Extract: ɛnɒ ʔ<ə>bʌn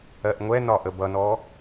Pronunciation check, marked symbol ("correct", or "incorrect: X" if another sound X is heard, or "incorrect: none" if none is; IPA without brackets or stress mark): correct